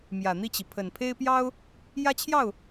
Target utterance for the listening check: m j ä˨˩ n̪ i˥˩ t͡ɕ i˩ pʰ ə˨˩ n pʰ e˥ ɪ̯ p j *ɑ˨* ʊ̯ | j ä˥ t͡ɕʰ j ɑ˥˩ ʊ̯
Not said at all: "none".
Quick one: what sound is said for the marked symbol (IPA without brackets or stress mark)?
ɑ˥